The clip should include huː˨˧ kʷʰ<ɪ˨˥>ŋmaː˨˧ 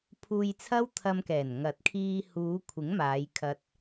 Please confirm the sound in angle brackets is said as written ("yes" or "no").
yes